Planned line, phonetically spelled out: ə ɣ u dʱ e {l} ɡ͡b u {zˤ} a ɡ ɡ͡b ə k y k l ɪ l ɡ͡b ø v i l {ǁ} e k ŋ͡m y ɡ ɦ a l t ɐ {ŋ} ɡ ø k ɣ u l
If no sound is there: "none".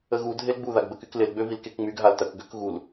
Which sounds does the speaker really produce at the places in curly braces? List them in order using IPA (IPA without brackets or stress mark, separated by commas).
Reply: l, ð, k, k